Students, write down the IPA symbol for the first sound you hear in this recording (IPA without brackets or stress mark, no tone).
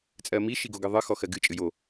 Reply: t͡sʼ